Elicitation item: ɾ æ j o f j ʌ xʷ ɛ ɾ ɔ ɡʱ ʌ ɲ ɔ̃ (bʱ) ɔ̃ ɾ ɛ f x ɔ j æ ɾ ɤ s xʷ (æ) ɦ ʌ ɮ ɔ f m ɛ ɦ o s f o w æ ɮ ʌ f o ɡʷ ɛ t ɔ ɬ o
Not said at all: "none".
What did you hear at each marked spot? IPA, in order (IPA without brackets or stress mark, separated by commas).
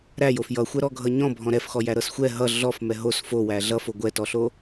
bʱ, ɛ